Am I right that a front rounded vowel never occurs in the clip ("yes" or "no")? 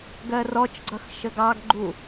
yes